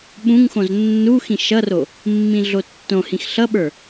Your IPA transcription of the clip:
ɓ ũ ŋ x õ z nː u x ĩ ʃ ʌ r o | mː ĩ ɮ o tː õ h ĩ x ɬ ʌ ɓ ə˞

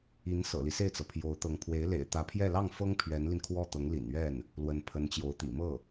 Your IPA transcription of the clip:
i˧˥ n s ɤ̰˨˩ l i˦ s e˥˩ ɪ̯ t͡s ɤ˩ pʰ j o˧˥ ʊ̯ t̪ ɤ˧˥ ŋ pʰ w e˧˥ ɪ̯ l ḛ˨˩ ɪ̯ t̪ ä˧˥ pʰ j ɛ˥˧ l ɑ˥˩ ŋ f ɤ˥ ŋ pʰ ɥ ɛ˧˥ n l i˧ n kʰ w ɔ˥˩ t̪ ɤ˧˥ ŋ l ḭ˨˩ n ɥ ɛ˥˩ n | l w ə˧˥ n pʰ ə˧˥ n t͡ɕ j o˧˥ ʊ̯ t̪ ḭ˨˩ m ɤ˥˩

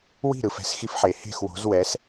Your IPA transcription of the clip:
w i̤˥˩ ɾ ɯ˩ f ɛ̤˩˥ s x i˧ f ħ e˩ h e̤˥˩ x w o̤˩˥ z w ɛ˩˥ s

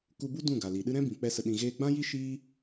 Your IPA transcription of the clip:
k u˧ b u˦ d ũ˦˨ ɡ a˨ l i˨ ɗ ɨ˦ ɾ ɛ̃˦ b ĩ˨ k͡p ɛ˧ s ə˨ ɗ ĩ˨ ɣ eː˧ ɡ͡b ã˦ j i˦ ʃ iː˦

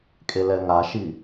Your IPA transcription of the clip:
kʼ e l ɛ ŋ a ʃ i

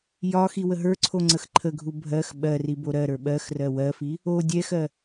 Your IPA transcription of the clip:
j ɒ x i w ə ɦ ə˞ ǀʰ o ŋ͡ǀ ə x ǃʰ ə ɡʱ u bʱ ɜ x ɓ ɜ r i b o ɾ ɜ ɾ ə˞ ɓ ɜ x r ɜ w ɜ f i | o dʲ ɛ x ɜ

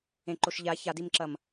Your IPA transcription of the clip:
ẽ ǃ o ʃ ʎ a ç a d i m ǁ ɐ m

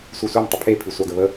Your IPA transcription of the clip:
sʷ e sʷ i m tˤ ə pʰ e pʰ i sʷ ɑ ɡ ə β ə

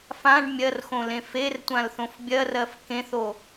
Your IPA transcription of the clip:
f ã ɖ mʲ ɜ r x õ l ẽ f e r tʷ ã l θ õ f bʲ ɜ r ɜ f k ẽ θ o

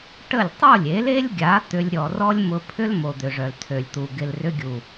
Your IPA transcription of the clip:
ʈ ə˦˨ lʲ tˤ o˦˨ lʲ e˨˦ l e˦ lʲ ɡʲ a˨˦ t̪ ʏ˧ lʲ ɾʲ ɔ˨ r ɔ˦ lʲ m ʊ˧ pʰ ʏ˦ l m o˨ d̪ ʏ˨ ʐ œ˨ l tʰ ø˨ lʲ t̪ u˨ ɡ ɪ˨ l r ʏ˧ ɡʲ u˨

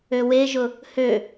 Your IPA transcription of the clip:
ø w e ʒ ʊ | h ø

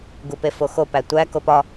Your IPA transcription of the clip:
ɡ u p e f o x o p æ tʷ æ k o p ɒ

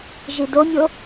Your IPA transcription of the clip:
ʒ i d o mʲ o

